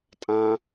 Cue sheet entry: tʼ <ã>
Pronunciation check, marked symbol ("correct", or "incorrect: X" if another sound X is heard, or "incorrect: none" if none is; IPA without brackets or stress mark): correct